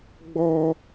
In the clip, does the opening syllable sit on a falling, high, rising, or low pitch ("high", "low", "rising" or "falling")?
high